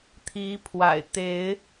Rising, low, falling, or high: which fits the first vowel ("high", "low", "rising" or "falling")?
rising